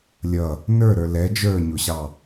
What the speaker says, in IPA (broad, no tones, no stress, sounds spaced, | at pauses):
lʲ ʌ | n ə˞ ɾ ə˞ l ɛ d͡ʒ ə˞ ɲ ʊ ɕ ɑ